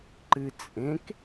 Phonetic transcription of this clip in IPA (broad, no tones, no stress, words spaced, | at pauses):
ǃɨt͡sʼẽk